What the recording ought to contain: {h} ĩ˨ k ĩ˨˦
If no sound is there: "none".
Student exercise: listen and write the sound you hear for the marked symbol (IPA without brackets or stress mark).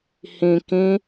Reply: h